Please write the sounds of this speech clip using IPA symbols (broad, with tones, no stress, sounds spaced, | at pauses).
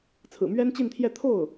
t͡sʰ ɹ̩˨˩ m ɥ ɛ˥ n t͡ɕ i˥˧ n t̪ʰ j ɛ˥˧ t̪ʰ o˥˩ ʊ̯